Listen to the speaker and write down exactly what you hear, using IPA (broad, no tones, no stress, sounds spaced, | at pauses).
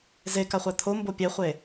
z e k a χʷ æ t̪ʰ o m b o pʲ e χʷ e